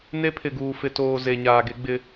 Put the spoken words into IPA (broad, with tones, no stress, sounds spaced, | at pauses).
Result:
n e˦ pʰ ɪ˨ ɡ uː˨ f ɪ˨ t oː˨ z e˨ ɲ aː˨ ɡ e˦ ɡ͡b ɪ˦